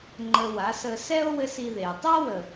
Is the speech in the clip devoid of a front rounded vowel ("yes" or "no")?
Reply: yes